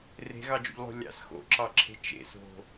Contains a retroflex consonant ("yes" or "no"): no